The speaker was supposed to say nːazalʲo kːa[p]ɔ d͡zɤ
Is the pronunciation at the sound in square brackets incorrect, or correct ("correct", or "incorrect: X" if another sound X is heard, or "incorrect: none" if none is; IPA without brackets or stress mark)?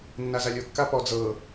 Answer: correct